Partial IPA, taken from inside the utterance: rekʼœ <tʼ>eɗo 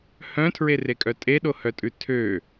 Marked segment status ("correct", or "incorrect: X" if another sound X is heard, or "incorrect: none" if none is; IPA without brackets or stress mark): correct